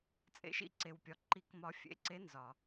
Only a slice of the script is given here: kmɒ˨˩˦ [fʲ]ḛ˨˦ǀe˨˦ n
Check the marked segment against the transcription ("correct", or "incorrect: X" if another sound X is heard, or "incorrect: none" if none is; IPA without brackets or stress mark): correct